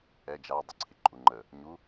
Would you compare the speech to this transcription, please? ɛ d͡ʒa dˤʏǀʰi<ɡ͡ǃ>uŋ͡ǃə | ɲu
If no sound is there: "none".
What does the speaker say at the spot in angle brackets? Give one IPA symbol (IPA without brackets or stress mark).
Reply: ǃʼ